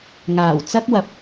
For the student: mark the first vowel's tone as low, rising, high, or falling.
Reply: low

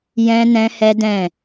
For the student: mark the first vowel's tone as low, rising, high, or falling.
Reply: high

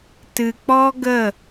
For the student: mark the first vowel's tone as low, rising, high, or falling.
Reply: low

